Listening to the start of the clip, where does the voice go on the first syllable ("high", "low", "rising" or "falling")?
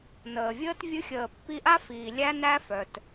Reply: low